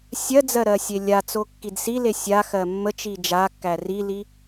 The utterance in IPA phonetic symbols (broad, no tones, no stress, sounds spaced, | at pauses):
sʲ ɜ d͡z ɜ ɾ ɜ sʲ e lʲ a t͡s o kː i d s i l e sʲ a x ɜ mː ə t͡ʃ i d͡ʒ a kː æ r i l i